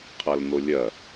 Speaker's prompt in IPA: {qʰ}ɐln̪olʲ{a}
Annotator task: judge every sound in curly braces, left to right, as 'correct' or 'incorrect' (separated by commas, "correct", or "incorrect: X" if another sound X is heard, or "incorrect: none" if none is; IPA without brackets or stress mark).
correct, incorrect: ɐ